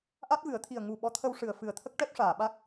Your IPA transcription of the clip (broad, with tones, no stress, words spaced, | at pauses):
ʔa˦˥t̚vɨ˨˩˦ə̯t̪ʰi˨˩ə̯ ŋu˨˩ ɓɔ˧˥t̪ʰə˧w ʂɨ˨˩ə̯fɨ˨˩ə̯t̪ʰə˦˥k̚ʈɛ˦˥p̚ ʂaː˨˩˨ɓa˦˥k̚